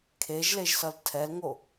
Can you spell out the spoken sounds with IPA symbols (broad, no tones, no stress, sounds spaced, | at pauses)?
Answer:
kʰ e ʒ l e ʒ s ʌ l tʰ ɛ l ŋ o